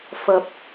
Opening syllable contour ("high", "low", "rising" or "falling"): rising